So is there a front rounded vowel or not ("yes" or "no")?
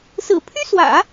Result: yes